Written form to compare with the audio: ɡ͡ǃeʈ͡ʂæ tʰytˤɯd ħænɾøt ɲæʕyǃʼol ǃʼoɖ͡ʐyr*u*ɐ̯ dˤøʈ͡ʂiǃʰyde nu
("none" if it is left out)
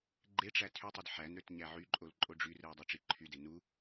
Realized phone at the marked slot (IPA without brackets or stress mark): ɯ